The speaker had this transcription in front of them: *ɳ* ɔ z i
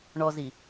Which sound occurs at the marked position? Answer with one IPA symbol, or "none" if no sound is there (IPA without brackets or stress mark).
ɳ